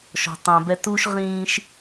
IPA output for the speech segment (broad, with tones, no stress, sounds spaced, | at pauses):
ʃ ɔ̤˨ tˤ æ̃˨ b ɛ˦ t u˦ ʃ ʁ ĩː˦ ʃ